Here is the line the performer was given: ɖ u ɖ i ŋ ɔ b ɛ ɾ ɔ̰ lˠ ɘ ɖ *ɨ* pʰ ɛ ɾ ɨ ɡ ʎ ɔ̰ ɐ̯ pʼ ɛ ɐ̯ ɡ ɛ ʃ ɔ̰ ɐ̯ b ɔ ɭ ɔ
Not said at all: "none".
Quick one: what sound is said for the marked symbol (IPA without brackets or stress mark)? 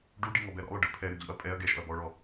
ɨ